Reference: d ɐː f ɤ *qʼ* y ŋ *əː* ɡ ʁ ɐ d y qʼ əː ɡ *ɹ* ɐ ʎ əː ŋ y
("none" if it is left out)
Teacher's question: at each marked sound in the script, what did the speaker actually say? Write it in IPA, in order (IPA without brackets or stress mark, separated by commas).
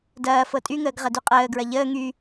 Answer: tʼ, əː, ɹ